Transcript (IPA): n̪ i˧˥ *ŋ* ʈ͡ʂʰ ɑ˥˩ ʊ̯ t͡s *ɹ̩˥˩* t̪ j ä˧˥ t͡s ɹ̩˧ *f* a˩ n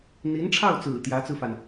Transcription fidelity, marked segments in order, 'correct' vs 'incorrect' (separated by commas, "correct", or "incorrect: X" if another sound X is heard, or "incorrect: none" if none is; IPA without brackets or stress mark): incorrect: n, incorrect: ɹ̩˨˩, correct